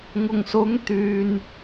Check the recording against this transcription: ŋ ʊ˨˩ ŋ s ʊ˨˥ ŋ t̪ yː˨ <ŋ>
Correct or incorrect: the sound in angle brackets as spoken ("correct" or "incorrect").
incorrect